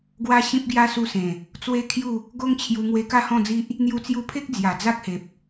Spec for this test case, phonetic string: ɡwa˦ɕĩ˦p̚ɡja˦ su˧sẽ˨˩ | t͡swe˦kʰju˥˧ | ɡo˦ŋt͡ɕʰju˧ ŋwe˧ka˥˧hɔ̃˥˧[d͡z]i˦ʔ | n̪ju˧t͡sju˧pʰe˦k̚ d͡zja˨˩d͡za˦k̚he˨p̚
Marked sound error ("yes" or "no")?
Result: no